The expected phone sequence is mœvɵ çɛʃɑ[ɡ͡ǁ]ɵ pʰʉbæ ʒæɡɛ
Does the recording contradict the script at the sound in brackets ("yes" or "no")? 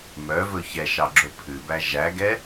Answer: no